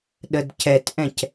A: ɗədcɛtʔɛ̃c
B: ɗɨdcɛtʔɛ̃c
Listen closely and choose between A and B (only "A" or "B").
A